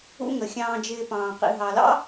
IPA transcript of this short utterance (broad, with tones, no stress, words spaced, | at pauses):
ṵ˦ŋə˩ xʲɑ̃ː˨d͡ʒɪː˨ pɑ̃ː˩qḭ˨ ɦɑ˩lɑ̰˦